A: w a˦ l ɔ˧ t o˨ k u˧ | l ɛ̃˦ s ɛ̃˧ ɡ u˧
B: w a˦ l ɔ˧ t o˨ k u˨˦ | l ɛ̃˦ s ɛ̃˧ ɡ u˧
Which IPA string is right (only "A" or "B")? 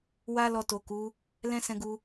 B